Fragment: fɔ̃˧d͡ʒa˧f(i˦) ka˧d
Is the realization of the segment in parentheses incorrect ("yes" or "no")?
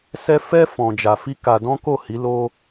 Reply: no